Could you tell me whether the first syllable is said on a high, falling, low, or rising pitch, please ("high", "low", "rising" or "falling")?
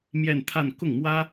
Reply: falling